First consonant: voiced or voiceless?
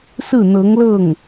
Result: voiceless